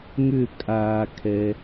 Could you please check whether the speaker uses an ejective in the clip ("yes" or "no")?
yes